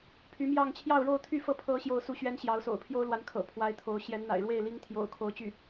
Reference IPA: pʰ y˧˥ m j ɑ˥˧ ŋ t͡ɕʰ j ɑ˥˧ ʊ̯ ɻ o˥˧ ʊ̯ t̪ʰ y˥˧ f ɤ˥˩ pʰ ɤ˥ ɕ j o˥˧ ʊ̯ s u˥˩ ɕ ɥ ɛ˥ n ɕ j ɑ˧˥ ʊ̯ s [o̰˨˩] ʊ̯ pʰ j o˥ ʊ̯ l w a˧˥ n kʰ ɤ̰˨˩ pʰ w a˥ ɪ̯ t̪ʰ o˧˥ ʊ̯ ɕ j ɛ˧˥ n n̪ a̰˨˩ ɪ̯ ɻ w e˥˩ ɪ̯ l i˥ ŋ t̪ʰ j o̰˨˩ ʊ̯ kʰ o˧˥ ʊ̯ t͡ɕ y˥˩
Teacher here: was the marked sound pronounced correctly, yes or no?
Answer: yes